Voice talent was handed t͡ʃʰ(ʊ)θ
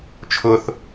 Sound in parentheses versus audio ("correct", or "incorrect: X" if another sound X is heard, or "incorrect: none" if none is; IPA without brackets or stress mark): correct